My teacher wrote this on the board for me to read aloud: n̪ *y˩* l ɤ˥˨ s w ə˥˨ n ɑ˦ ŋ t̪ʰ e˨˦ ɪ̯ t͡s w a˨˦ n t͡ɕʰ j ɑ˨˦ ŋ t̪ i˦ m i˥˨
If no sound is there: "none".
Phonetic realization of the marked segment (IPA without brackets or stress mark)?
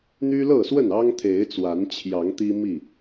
y˦